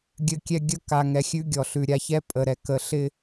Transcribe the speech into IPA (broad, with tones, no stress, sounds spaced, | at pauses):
ɡʲ ɘ˨ kʲ ɛ˨ ɡʲ ə˦ k a˨ ŋ ɛ˨ xʲ ʉ˦ ɡʲ ɔ˨ ɬ ʉ˨ ɾʲ a˨ ç ɛ˦ pʼ ə˨ ɾ ɛ˨ k ə˨ ɬ ɪ˦